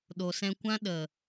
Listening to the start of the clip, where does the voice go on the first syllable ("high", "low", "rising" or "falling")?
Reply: low